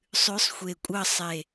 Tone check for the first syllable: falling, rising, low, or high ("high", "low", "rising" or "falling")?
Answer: rising